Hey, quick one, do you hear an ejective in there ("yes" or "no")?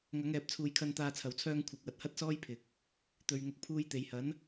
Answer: no